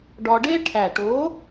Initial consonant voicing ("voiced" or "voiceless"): voiced